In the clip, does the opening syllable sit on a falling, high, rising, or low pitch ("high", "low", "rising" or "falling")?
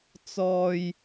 low